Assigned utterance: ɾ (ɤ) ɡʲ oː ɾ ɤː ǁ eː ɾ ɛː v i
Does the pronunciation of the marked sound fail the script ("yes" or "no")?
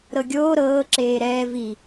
no